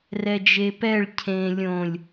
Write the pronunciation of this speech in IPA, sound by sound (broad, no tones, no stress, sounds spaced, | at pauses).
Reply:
r ɛ d͡ʒ e p ɛ ɭ cʰ ẽ lʲ õ lʲ